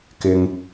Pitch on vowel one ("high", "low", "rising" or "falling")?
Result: high